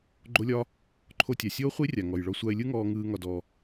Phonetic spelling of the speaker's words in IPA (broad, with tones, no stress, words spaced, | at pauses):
ɡ͡ǃo˦lʲɒ˦ | ǃʰo˧tʲa˨sʲoː˦ χʷi˦rʲa˨ ŋɔ˨jɭɔ˧ sʷa˧ɪ̯lʲɯ˦ŋɔː˧ ŋɯː˦ ŋɒ˧dɔ˧